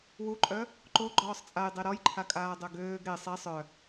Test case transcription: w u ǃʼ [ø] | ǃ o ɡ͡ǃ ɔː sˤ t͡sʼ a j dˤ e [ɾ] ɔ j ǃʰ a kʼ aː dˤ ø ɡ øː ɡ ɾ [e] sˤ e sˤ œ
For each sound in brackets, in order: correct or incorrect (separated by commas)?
incorrect, correct, correct